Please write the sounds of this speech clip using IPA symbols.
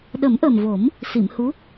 ɗ ə˨˩˦ m ʔ ə˨˩ m v o˨˩˦ m | s i˨˩˨ m h u˧˥

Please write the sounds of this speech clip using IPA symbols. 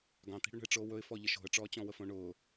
ɡ ɑ̃ t̪ i̤ ɽ ɵ ɳ ə̤ ɪ̯ ʈ͡ʂ oː w ɵ ɪ̯ f ɔ ʎ ə ʃ o̤ ə̯ ʈ͡ʂ ɔː t͡ɕ ɔ̃ w ə f õ ɳ ʊː

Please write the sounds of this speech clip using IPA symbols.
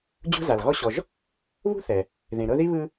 d͡ʑ ṳ˦ z a˩ l ɣ ɔ˦ ɕ ɔ˨ ʒ | β ṳ˥ θ ɛ˩ | ð ẽ˩ ɾ ɤ˦ ð i˥ β ɯ˦

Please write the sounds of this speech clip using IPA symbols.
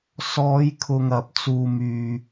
s ɔː˨˧ j kʰ ʊ˨ ŋ ɐ˨ p̚ t͡s uː˧ m yː˧

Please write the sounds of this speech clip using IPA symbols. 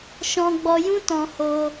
ʃ ɔ̃˧ ɡ͡b ɔ˧ j ũ˦ t ɔ̃˧ h o˧

